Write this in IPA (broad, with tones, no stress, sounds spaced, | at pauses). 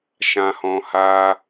ʃ ã˧ h ɔ̃˧ h aː˦